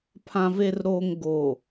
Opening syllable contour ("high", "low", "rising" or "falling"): low